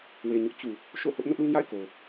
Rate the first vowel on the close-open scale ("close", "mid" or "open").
mid